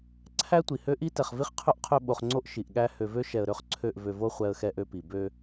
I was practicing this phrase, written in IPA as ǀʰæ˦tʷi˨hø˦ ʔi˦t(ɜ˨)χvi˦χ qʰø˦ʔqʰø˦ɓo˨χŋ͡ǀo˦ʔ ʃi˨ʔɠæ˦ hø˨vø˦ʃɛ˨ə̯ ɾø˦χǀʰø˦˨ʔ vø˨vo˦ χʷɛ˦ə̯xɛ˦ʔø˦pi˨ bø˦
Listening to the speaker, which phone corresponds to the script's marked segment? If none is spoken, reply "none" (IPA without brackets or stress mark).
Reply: ɛ˨